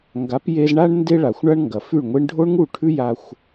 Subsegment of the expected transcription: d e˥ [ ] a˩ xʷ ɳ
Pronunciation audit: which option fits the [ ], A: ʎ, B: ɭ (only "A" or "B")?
B